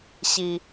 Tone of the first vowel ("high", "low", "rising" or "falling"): low